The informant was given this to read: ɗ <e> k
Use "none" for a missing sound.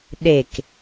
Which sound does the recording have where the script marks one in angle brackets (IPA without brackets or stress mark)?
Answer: e